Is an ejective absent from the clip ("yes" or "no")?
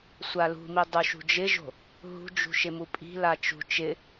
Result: no